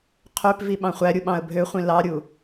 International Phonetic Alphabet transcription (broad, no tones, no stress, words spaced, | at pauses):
qʰøpvi ɓɑ̃χʷæɾʲu ɓɑ̃ə̯bʱøχʷĩ lɑɾʲu